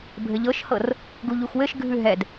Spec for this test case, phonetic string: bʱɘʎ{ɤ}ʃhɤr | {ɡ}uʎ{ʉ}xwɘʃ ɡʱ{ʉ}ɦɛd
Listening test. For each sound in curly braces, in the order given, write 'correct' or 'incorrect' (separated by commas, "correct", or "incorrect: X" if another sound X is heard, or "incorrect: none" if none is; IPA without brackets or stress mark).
correct, correct, incorrect: u, correct